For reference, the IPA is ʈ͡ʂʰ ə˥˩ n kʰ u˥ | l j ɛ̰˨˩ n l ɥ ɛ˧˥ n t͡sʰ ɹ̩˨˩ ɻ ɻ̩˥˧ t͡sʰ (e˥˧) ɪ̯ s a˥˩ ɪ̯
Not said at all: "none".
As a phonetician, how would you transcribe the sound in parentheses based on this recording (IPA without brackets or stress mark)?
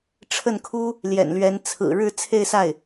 e˥˧